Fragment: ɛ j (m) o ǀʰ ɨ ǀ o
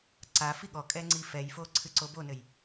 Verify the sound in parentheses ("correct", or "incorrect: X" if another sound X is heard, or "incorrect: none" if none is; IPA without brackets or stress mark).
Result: incorrect: f